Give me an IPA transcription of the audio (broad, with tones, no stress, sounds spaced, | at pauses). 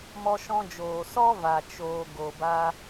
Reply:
m ɔ˧ ʃ ɔ̃˧ d͡ʒ oː˨ s ɔ˦ v a˨ t͡ʃ oː˨ ɡ o˨ b a˧